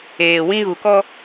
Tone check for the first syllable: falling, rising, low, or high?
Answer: low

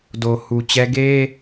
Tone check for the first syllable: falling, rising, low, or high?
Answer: low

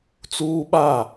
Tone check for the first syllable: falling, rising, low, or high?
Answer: high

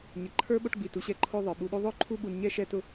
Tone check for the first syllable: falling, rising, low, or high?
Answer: low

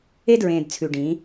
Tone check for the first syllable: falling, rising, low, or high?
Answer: high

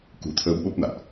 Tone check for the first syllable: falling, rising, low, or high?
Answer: low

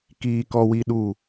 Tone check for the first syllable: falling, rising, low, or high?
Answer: low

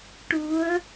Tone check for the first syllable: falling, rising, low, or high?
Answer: rising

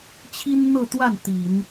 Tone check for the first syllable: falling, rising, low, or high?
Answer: high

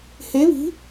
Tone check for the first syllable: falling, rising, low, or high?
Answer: rising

